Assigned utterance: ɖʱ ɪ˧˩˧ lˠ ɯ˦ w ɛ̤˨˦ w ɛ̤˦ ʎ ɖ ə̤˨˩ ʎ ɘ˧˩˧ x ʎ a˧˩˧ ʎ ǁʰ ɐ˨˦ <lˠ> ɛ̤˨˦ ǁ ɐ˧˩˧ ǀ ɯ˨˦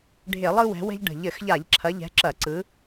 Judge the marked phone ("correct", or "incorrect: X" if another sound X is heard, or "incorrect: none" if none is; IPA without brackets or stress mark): incorrect: ʎ